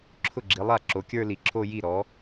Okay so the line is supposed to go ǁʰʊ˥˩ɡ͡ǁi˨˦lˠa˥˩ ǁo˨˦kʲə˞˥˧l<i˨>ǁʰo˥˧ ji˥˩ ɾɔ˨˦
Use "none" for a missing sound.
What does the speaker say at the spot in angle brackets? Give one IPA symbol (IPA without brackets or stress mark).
i˨